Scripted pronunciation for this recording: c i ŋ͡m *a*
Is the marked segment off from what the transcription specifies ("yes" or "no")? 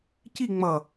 yes